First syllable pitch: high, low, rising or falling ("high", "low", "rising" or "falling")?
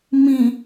low